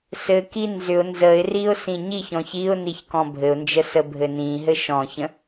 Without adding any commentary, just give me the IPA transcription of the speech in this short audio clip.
s ɘ k i n z ʏ ʊ̯ n z ə ɪ̯ r i ʊ̯ s ĩ ɲ i ç ɔ̃ ç i ʊ̯ n i ç k ɔ̃ bʱ ɘ ʊ̯ n d͡ʒ ə s ə bʱ ɘ n ĩ ɦ ɘ ʃ ɔ̃ ç ə̃

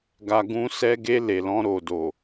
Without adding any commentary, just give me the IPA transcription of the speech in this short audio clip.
ɡ a˧ ɡ ũ˦ s ɛ˧ ɡ e˧ l e˨ l ɔ̃˧ ɾ o˨ d o˨

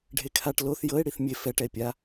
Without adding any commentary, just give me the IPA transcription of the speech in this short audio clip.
ɖʱ e kʰ a ʈ l o θ j ɤ e̯ ɽ i θ mʲ e f ɛ ʈ ɛ e̯ pʲ a

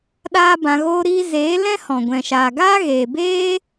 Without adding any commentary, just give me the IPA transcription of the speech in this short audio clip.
ɗ aː˦ b ã˧ ɣ oː˦ ɾ iː˦ z eː˨˦ l ɛ̃˦ h ɔ̃˨ ɡʷ ɛ̃˨ ʃ aː˨ ɡ aː˦ ɣ eː˨ b eː˦

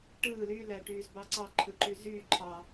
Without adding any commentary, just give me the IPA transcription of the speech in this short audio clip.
ʈ ɯː l y l æ ʈ yː z b ɑ ǀ ɑ ǃʰ ɯ ǃ y z yː ǃʰ ɑ

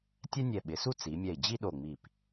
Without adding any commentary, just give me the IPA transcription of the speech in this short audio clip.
tʲ ɛ˥ nʲ ɛ˧˩ ɓ ɪ˩˧ s u˥ t͡s i˩˧ mʲ ɛ˧˩ i̯ d͡ʑ i˥ ɗ o˧˩ ŋ͡m i˧˩ p

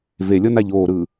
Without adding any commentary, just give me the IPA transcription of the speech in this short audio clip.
v e lʲ ɤ n a ʎ oː ɾ ɯː

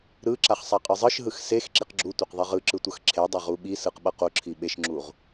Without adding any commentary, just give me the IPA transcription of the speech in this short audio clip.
ɾ ɯ ǁ a χ sˤ a qʼ ɯ zˤ ɯ ʃ ɦ ɯ x s e x ǁ i q ɡ͡ǁ u tʷ ɛ q ðˤ i ʁ ɯ ǁ ɯ tʷ ʌ x ǁʰ e dˤ a ʁ u ɓ i s ɯ q ɓ ʌ q o ǁʰ i ɓ e ʃ ŋ͡ǁ u ʁ

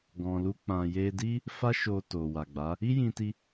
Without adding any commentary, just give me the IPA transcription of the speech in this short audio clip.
ɡ ɔ̃˨ l u˧ k͡p ã˨ j e˧ d i˦ | f a˦ ʃ o˧ t o˨ w a˨ ɡ͡b a˨˦ | i˦ j ĩ˧ t i˧

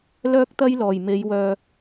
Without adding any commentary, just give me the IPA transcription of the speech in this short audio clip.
l œː˥ k̚ t̪ ɐ˥ j l ɔː˨˩ j m e˨˧ j w œː˨

